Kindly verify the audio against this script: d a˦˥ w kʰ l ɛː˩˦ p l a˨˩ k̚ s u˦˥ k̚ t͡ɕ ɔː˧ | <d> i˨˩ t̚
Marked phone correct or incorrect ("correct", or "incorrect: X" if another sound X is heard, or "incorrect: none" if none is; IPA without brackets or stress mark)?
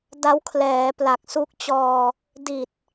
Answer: correct